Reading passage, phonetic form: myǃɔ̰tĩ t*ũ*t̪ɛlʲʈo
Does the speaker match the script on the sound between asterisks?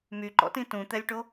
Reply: yes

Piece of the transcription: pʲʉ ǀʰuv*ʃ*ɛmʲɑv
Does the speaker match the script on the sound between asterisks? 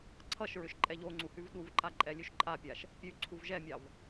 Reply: no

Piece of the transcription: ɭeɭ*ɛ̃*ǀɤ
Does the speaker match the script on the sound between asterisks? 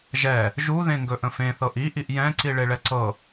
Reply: no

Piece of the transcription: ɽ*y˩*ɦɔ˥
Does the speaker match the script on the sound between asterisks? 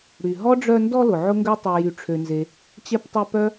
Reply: yes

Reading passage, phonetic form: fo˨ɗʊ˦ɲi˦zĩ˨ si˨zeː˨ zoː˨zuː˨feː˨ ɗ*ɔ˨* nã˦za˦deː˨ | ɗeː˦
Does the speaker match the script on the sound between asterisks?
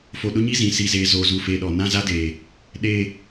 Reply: yes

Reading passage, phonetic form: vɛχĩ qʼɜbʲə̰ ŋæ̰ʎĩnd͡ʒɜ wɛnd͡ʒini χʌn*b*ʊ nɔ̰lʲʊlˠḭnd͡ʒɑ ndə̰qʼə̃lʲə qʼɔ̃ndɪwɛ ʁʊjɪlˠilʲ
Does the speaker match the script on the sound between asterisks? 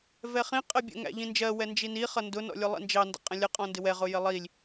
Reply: no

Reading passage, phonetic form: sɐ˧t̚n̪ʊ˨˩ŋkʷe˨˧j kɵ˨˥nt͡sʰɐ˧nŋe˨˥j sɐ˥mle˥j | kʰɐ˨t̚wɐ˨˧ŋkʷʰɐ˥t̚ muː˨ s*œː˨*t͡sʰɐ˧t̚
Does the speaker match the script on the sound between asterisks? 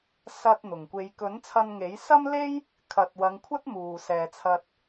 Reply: no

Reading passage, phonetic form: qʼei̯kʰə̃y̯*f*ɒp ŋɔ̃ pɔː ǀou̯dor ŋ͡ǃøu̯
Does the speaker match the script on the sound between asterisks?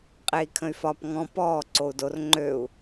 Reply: yes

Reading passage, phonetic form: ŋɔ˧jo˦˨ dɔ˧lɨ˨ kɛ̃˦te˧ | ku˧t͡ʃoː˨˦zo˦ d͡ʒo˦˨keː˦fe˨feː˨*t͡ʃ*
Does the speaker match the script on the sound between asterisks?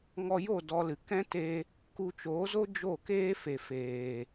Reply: no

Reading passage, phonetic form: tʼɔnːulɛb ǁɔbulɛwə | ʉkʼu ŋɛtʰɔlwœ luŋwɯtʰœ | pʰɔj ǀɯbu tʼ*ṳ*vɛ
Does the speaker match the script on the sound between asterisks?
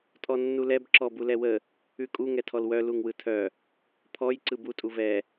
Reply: no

